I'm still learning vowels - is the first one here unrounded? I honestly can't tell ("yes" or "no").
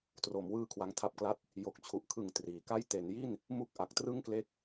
no